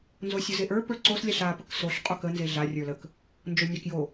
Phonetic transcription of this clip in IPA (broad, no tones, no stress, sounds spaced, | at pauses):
n z o sʲ o z e ʔ ə˞ p ə˞ ǀ o s lʲ a ɬ a p ə k s o ɬ qʼ o k ə n z e ɮ a rʲ ə˞ l ə k | n d͡ʒ o nʲ a k j o